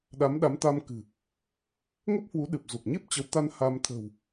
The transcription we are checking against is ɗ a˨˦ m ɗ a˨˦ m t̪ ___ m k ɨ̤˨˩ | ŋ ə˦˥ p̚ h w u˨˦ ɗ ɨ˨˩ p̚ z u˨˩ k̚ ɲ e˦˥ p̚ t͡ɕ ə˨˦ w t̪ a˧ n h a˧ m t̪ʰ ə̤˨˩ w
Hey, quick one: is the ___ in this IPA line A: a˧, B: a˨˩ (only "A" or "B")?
A